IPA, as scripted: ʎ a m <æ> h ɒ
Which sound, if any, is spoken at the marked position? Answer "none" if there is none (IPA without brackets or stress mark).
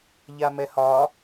ɛ